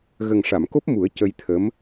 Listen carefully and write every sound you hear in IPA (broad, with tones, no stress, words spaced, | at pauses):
ɣə˨˩ŋʂa˨˩˨mko˦˥p̚mu˨˩˦ə̯ cə˧jt̪ʰə˧˥m